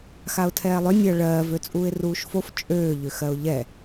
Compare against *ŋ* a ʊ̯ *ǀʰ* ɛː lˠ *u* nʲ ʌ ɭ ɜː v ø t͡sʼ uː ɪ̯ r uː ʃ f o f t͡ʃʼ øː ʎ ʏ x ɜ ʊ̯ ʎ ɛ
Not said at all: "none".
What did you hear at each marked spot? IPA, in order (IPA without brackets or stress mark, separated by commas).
x, tʰ, ʏ